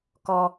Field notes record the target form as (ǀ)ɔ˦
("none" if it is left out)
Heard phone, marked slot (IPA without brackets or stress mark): k